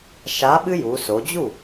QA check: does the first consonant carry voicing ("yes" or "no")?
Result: no